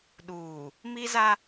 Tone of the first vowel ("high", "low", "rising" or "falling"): low